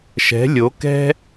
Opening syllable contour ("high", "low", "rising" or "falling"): rising